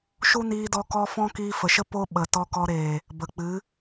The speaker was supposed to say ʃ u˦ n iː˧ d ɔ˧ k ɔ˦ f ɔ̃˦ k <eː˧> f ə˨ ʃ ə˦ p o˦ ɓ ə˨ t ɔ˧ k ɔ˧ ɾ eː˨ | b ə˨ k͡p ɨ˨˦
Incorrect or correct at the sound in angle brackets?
incorrect: iː˧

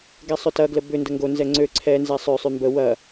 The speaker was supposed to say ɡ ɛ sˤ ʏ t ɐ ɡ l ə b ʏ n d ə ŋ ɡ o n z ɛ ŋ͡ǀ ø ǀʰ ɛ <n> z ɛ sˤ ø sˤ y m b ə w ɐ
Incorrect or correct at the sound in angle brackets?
correct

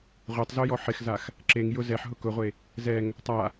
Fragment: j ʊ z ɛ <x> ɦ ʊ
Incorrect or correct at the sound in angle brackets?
incorrect: ħ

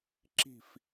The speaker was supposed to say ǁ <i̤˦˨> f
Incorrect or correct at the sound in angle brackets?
correct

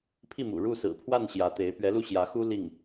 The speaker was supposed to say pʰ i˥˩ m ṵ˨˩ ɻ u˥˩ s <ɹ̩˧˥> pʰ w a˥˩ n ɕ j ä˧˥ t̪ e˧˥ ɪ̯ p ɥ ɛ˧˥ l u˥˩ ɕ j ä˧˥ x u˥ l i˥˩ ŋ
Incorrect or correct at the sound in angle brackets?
incorrect: ɹ̩˨˩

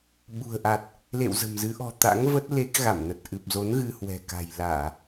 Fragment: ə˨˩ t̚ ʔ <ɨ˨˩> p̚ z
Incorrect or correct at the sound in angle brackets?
correct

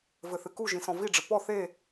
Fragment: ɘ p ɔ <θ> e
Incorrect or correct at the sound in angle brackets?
correct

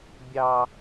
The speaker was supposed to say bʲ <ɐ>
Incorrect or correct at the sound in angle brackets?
incorrect: ɑ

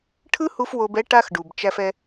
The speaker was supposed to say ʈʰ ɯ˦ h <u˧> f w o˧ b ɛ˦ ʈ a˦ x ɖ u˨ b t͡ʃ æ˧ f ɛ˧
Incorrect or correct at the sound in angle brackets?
correct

